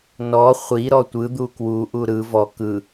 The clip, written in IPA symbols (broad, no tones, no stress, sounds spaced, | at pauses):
n ɔ χʷ i ɾ ɔ tʷ ɯ d̪ u k w u ʔ u ɾ ɯ v ɔ k ɯ